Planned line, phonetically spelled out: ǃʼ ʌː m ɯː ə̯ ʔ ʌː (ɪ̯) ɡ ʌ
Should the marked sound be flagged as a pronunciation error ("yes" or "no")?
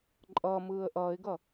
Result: no